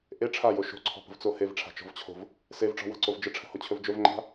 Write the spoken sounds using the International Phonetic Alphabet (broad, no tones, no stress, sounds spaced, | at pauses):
ʔ e ʈ͡ʂʰ a j o ʃ o̤ ǀʰ ɔ̤ p ə̤ v t͡s o h e v ʈ͡ʂʰ a̤ t͡ʃ ɔ̤ v t͡ɕʰ o̤ v | s e v ʈ͡ʂ ɔ̤ w a̤ ǀ o v d͡ʒ ə ʈ͡ʂʰ ə̤ h o t͡ɕʰ ɵ v d͡ʒ ɵ v ŋ͡ǃ a̤